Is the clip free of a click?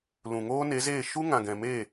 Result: yes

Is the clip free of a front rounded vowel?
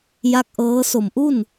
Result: yes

